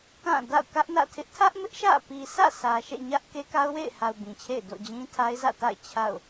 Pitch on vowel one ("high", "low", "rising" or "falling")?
falling